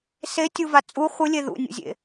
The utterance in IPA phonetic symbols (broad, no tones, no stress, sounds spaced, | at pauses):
s e tʲ u v a t͡sʼ u χʷ ɯ lʲ e ð ṵ nʲ ṵ zʲ ḛ